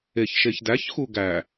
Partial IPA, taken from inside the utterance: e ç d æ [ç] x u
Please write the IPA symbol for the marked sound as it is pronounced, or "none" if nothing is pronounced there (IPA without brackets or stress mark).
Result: ç